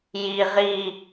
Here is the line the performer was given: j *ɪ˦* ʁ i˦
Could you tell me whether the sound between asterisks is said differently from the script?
yes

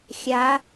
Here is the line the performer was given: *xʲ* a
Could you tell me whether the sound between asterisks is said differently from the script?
no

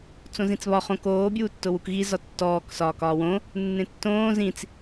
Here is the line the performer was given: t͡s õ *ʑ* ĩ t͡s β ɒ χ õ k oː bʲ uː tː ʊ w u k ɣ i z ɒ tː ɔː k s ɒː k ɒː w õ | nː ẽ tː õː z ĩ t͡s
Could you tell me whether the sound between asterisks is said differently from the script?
yes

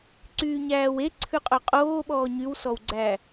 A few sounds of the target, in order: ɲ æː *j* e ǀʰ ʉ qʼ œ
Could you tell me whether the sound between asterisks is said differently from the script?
yes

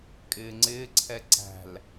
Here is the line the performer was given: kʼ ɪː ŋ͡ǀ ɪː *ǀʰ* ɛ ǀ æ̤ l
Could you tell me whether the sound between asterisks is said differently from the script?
no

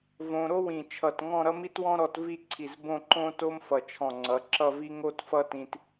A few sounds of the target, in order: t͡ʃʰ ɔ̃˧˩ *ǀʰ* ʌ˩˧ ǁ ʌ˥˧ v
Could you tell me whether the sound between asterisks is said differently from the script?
yes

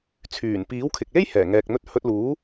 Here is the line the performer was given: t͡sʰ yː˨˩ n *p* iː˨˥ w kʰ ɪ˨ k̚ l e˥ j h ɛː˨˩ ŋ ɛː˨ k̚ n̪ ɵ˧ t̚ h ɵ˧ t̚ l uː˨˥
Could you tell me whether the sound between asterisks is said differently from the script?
no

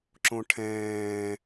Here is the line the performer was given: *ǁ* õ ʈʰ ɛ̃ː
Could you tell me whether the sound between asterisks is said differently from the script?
no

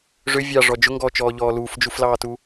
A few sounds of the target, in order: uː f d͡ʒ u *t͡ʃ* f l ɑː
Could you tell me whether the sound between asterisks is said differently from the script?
yes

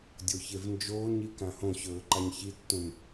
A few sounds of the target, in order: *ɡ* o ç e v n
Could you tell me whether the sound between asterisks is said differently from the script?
yes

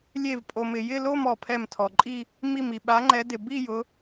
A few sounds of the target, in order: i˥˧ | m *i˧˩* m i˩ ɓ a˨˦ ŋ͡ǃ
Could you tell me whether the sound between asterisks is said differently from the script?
no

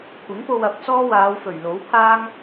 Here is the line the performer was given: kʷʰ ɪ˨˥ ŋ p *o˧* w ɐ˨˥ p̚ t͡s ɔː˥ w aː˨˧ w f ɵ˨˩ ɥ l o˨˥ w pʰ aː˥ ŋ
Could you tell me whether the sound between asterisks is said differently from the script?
no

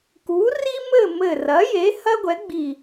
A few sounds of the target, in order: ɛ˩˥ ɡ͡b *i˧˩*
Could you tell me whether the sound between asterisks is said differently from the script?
no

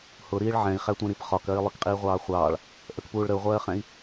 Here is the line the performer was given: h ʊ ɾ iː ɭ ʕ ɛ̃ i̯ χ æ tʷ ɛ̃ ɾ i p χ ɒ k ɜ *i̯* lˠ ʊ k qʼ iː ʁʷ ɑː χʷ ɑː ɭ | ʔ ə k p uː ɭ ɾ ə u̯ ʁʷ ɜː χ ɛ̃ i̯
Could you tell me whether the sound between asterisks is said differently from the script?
no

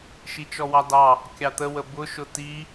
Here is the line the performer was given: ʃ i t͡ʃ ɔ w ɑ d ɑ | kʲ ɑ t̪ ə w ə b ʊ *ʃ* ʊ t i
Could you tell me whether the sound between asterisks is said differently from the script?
no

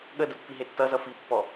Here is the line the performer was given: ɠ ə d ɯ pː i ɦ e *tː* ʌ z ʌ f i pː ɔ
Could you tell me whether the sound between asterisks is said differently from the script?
no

